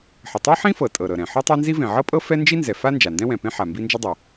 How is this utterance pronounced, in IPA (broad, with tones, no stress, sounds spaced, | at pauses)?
ħ ə˩ tˤ ɤ˥ ħ ĩ˥ f ɤ˩ tʼ ɤ˩ ɾ ɤ˩ ɾ ɛ̃˩ ħ ɤ˥ tˤ a˥ n z i˥ v ẽ˩ ʕ ɤ˥ pʼ ɤ˥ f ɛ˥ n d͡ʒ i˥ n z ɛ˩ f a˥ n d͡ʒ a˩ n d ɛ̃˥ w ɛ̃˩ p ẽ˥ ħ a˩ m b i˥ n d͡ʒ ə˥ dˤ ɤ˩